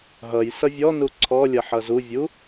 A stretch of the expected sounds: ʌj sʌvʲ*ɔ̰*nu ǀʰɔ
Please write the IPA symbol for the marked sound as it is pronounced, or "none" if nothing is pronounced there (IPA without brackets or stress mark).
ɔ